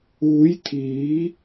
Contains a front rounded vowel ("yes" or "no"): no